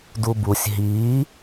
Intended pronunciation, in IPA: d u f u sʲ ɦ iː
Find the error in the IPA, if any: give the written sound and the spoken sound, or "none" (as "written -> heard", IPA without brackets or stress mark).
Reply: f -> b